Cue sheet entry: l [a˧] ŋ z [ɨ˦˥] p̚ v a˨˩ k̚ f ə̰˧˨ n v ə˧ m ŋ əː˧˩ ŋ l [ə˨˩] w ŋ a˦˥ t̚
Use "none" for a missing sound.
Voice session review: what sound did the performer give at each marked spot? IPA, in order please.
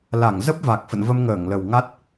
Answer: a˧˩, ə˦˥, ə˨˩

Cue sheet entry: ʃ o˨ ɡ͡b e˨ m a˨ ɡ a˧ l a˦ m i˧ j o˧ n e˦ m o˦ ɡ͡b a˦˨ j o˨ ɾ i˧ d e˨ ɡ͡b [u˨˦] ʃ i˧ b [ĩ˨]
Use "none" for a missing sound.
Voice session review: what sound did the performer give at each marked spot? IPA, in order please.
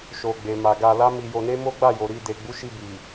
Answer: u˨˦, i˨

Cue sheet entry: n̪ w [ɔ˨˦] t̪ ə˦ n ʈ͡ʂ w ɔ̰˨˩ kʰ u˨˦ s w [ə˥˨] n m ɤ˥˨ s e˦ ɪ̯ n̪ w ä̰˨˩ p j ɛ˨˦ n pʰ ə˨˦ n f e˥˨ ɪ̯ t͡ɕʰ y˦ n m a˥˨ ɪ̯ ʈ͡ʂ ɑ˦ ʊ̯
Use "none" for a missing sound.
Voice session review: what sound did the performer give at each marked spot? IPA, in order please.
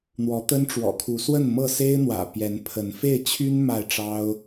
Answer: ɔ˨˦, ə˥˨

